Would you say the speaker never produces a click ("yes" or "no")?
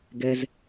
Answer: yes